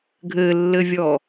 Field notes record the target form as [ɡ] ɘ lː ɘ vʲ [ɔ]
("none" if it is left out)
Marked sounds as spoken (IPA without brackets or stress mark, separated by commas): ɡʱ, ɔ